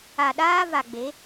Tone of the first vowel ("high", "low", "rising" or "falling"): low